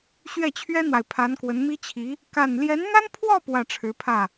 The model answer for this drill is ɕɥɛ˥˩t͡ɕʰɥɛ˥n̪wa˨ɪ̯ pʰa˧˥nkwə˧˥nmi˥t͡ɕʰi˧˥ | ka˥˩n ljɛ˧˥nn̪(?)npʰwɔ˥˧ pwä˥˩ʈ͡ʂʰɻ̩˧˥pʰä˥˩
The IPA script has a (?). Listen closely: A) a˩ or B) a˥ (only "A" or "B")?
B